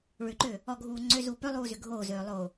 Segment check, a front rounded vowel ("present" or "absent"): present